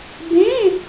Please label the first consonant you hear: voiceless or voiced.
voiced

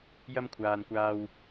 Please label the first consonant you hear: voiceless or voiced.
voiced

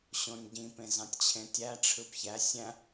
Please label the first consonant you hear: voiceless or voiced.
voiceless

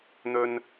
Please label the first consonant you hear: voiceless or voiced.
voiced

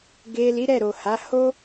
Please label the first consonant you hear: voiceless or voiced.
voiced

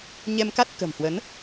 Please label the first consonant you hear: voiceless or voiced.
voiced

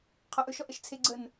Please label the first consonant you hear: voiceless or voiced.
voiceless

